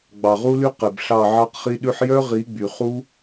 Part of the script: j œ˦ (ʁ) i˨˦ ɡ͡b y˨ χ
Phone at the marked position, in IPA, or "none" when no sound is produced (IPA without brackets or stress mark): ʁ